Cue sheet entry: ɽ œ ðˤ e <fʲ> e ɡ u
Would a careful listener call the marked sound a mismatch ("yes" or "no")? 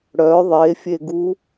no